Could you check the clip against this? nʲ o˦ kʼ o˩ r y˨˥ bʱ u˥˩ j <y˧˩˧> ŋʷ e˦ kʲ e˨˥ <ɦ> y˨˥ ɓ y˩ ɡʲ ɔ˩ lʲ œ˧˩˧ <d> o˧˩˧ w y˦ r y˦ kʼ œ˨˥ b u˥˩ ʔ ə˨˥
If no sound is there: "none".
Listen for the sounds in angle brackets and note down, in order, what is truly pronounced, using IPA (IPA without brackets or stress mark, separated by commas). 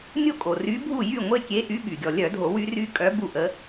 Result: y˥˩, ʔ, dʱ